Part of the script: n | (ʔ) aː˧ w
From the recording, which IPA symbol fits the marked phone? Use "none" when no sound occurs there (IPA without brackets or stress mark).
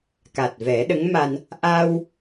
ʔ